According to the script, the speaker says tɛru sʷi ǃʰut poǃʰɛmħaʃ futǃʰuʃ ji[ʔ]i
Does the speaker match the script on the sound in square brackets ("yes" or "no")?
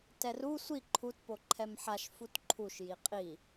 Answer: no